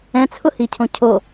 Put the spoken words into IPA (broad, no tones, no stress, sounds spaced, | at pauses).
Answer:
ɛ̃ t͡sʰ ʊ h i cʰ õ cʰ o